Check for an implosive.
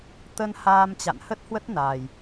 absent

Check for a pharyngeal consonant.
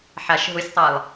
present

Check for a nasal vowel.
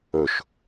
absent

